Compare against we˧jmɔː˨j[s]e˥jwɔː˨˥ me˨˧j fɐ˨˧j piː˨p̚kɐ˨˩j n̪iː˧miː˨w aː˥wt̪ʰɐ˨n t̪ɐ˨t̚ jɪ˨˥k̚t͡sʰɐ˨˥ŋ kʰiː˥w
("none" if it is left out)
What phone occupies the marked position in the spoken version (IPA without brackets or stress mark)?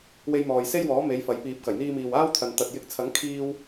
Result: s